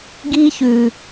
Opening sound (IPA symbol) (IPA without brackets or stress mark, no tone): ɡ